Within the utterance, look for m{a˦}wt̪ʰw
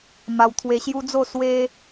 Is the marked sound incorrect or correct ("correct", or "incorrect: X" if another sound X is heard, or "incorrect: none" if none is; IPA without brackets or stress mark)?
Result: incorrect: a˧